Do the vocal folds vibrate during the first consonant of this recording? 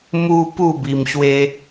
yes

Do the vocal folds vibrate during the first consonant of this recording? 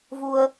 yes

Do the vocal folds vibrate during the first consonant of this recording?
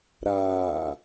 yes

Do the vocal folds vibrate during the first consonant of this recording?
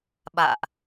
yes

